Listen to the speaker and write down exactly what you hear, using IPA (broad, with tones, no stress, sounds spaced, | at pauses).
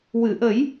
w ɨ˨˩˨ ʔ ə˨˩˦ j